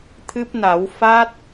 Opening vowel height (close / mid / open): close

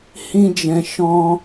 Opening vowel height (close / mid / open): close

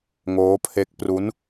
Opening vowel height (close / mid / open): mid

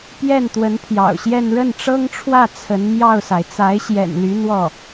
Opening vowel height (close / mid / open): mid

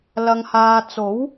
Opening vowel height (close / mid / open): open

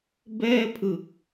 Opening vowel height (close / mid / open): mid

